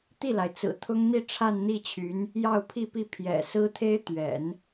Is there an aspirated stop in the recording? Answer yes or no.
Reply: yes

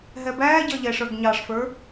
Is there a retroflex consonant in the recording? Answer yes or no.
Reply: yes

